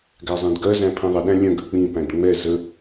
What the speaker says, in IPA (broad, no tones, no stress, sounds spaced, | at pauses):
ɡ æ zˤ ɛ̃ d ɡ ɜ z æ̃ pʰ ĩ ðˤ ə ɗ æ̃ lʲ ə̃ ɡ ə k͡p ĩ p æ̃ d ŋ͡m ɛ z ə